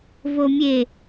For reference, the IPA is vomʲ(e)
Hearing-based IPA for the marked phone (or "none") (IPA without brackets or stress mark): e